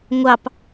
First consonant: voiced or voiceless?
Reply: voiced